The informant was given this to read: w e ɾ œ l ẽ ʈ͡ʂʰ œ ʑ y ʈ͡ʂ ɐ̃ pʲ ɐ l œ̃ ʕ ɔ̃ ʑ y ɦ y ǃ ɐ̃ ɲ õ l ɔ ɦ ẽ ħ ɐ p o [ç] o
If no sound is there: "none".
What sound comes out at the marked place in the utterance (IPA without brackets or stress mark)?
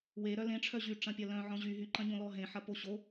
ɕ